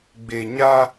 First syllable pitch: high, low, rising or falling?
low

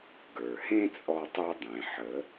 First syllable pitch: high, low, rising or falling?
low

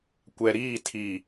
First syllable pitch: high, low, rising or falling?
low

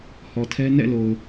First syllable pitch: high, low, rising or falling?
low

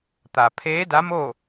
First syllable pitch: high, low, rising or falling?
low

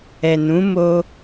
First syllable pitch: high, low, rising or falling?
low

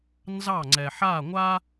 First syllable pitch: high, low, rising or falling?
falling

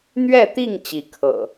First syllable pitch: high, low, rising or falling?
falling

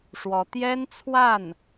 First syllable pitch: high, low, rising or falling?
rising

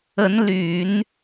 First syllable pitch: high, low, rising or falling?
rising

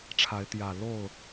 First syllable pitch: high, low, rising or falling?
rising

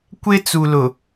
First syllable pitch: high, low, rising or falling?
high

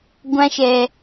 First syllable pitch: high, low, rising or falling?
high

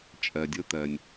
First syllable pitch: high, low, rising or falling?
low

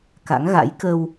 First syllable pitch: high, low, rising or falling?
rising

